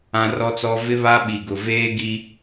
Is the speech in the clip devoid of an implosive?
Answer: no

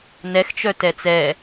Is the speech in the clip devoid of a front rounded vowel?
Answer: no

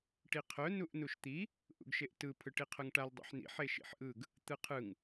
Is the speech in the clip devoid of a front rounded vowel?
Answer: no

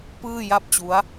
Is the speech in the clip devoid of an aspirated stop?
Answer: yes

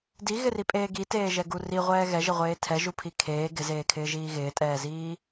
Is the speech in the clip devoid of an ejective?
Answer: no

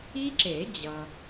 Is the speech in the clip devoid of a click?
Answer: no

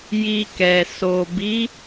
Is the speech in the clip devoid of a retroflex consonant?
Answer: yes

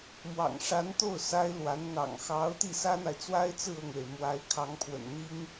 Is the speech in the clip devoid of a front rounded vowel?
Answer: yes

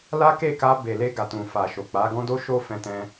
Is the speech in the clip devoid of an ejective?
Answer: yes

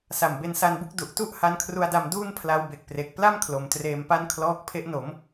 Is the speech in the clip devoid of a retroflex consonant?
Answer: yes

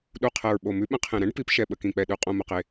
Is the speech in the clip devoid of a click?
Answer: yes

